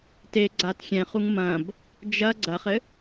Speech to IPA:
t e ɡ͡ǀ a t xʲ ɛ̃ χ u ŋ m ɐ̃ b | d͡ʒ ɐ ɡ͡ǀ ɐ χ ɘ

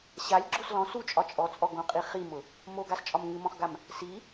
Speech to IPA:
ɕ a lʲ ɡ͡ǁ o s l ɔ̃ s u t͡ʃʼ ɒ t͡ʃʼ ɔ t͡sʼ ɔ ɡ õ qʼ i χ i m ʊ | m o ɡ a s t͡ʃʼ ɒ m ŋ ɨ m ɔ̃ χ ɡ a m | s i

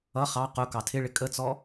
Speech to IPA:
ʌ χ ɑ q ʊ k ɑ tʰ ɪ ɭ ɪ kʼ ə t͡s ɔ

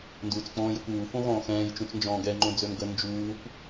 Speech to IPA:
n d uː t͡s k͡p ɔ̃ː j ə kʷ uː f õ ɣ ɔ̃ː x ɛ̃ː j t͡ʃ ũ t͡s n d͡ʒ ɔ̃ː ɡ ɛ ŋ͡ǃ õ d͡z ø m ɡ ə n d͡ʒ uː kʷ

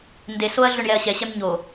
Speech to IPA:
n d e s o ɐ̯ ɮ ø ɳ j ɛ ɐ̯ ɕ ɛ ɕ ɛ m ɲ o

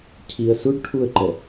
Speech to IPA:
cʰ i ə̯ s u ɖ ʈʰ u ə̯ ǃ ɛ

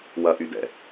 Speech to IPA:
w ɐ ʔ y d ɛ̰

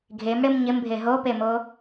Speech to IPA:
ɡʱ e m ɽ ɪ m ɲ ɪ m bʱ e ɦ o p e m o

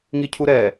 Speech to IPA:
ŋ i cʰ u ɾ ɛ

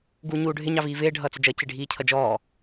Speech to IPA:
ɡ uː ɲ uː ɖʱ ɪ ɲ ɑ v iː v ɪː ɖʱ ʌː t͡s ɪ d͡ʒ ʌ c ɪ ɖʱ iː cʰ ʌ d͡ʒ ɔː

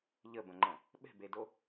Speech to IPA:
ʎ ə b ə̃ ŋ͡ǃ ə̃ | ɓ ɛ̤ b e d o

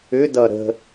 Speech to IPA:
ʏ d ʌ ɾ ə̤

